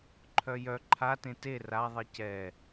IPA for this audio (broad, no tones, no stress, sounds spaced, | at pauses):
ǃʰ œ j œ ǃʰ a t ẽ t e r a ðˤ i c ɛ